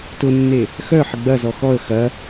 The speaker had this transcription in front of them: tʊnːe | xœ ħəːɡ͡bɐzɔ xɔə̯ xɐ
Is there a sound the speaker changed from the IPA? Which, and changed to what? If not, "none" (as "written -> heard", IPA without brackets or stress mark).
əː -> ə